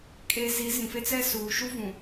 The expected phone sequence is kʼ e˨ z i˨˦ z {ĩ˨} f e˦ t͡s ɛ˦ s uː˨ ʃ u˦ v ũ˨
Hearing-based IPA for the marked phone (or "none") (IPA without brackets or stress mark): ĩ˨